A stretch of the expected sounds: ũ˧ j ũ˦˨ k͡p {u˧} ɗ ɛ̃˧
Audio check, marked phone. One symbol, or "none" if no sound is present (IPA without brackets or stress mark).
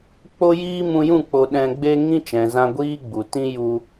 o˧